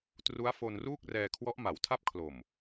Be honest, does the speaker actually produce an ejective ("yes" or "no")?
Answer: no